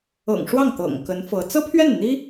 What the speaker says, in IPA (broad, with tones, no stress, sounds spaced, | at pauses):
ɤ̰˨˩ ŋ ʂ w ɑ˥˩ ŋ t̪ ɤ̰˨˩ ŋ k ə˧˥ n f ɤ˧˥ t͡s ɤ˥ pʰ ɥ ɛ˥˩ n n̪ i˥